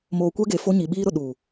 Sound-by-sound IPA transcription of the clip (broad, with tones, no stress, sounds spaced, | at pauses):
m oː˨ kʷ ɛ˦ ɡ e˨ f o˦ ɲ i˨ ɓ iː˦ ɾ ʊ˨ ɗ u˨